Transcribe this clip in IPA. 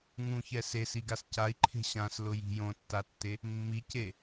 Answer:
ŋ ũ ç ɛ s e s i ɡ a s c a i̯ ǃʰ e̤ ɕ ã s l ʊ j i̤ j õ tː a tː e | mː i c e

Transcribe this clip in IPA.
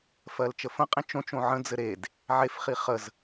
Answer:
f ɜ l t͡ʃ ə f ə̃ qʼ ĩ t͡ʃ õ t͡ʃ õ ʕ ə̃ d͡z ɘ ɾ e d | ʕ e f χ i χ ə z

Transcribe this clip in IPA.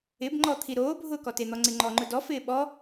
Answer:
ɪ b ŋ͡ǃ ɔ t̪ʰ i ɾ oː bʱ ʊː k ɔ t e n̪ ɔ ŋ͡ǀ ɪ ŋ͡ǃ ɔ ŋ͡ǃ ʊ d ɔ f ɪː ɓ ɔ

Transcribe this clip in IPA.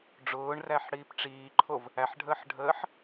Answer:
ɖ͡ʐ ʊː ɳ r æ ħ ɽ iː p ʈ͡ʂ iː ǃʰ o v | æ ħ ɖʱ əː ħ ɖʱ əː ħ

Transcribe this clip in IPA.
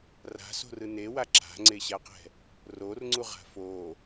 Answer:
r a̤ s o̤ r ɯ n e w a ǁ a̤ ŋ͡ǀ e ɕ a q ɛ̤ | r o r ŋ͡ǀ u ʁ a̤ f o

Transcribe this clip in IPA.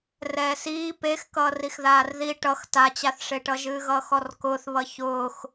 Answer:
r ɛː s iː p e x k ʌː r i x ð aː r ð i ʈ ʌ x t a t͡ɕ a θ ʂ e ʈ ʌ ʒ ɨː ɣ ʌː x ɔ r k ʊː θ β ʌ ç ʊː x

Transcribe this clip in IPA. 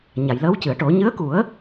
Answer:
ɲ a˨˩˨ j l əː˧˥ w c ɨ˨˩˨ ə̯ ʈ o˨˩˦ ɲ ɨ˧˥ ə̯ k u˨˩˦ ə̯

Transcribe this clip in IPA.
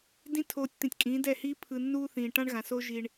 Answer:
d ĩ˦ tʰ oː˧ tʲ t̪ ĩ˨ tʲ kʼ ĩː˨˦ d ɛ˦˨ h iː˦ pʰ ɯ˧ nː uː˦ θ ĩː˨ ʈ ã˦ ɳ ɣ ã˨ s o˦ ʒ i˧ ɳ

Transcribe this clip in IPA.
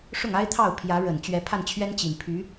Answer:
ʂ ʊ˥˩ ŋ a˥ ɪ̯ t̪ʰ ɑ˥˩ ʊ̯ pʰ j ä˧˥ ɻ ə˨˩ n t͡ɕ ɥ ɛ˧˥ pʰ a˥˩ n t͡ɕʰ ɥ ɛ˥ n t͡ɕ i˨˩ n pʰ y˧˥

